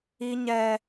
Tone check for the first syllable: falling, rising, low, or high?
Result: high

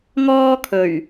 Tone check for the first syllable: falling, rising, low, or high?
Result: high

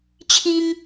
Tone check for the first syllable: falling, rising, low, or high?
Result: high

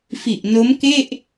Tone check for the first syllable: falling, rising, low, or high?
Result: low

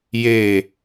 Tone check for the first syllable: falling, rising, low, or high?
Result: low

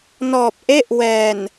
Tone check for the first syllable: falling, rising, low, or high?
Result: low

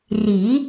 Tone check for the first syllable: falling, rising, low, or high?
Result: rising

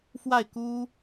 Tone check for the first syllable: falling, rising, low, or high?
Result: falling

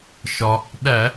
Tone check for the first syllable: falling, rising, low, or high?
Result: low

